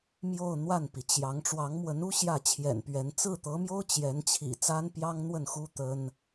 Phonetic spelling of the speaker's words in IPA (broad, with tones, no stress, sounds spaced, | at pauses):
m j o˥˧ ʊ̯ n̪ w a˥˩ n p i˩ t͡ɕ j ɑ˧˥ ŋ ʈ͡ʂ w ɑ˧˥ ŋ m w ə˧˥ n u˥ ɕ j ä˥˩ t͡ɕʰ j ɛ̰˨˩ n p ɥ ɛ˧˥ n t͡s ɹ̩˥˩ t̪ ɤ˧˥ m j o˥ ʊ̯ t͡ɕ j ɛ˧˥ n t͡ɕʰ ḭ˨˩ t͡s a˥ n p j ɑ˥ ŋ n̪ w ə˥˩ n x u˥ t̪ ə˥ n